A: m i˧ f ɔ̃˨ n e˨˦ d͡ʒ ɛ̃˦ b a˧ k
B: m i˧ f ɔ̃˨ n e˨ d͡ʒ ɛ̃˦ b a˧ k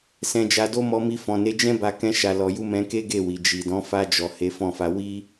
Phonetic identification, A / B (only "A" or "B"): A